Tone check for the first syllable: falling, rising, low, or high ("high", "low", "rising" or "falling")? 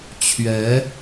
rising